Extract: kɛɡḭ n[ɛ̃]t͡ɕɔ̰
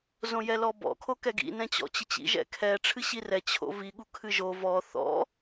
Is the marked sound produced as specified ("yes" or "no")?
yes